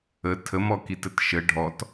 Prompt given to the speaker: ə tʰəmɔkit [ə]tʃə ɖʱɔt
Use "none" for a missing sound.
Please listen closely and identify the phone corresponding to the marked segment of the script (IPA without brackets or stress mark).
ə